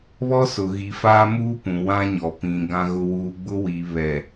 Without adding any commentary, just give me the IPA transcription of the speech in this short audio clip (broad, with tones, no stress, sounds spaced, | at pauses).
β ɔ˦ s ʊ˨ ɣ i˨ f aː˦ m uː˦ p ũ˨ w ã˦ ɲ ɔ˨ p ĩ˨ ɡ ã˦ ɣ ʊ˦ w uː˦ ɡ͡b ʊ˦ w i˨ β ɛ˨